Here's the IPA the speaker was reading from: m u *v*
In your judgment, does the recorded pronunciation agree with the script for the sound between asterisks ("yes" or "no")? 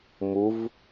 yes